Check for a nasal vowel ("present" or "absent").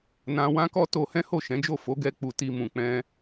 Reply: present